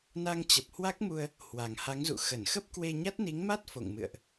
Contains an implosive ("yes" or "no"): no